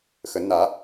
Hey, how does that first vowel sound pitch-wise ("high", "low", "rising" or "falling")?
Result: rising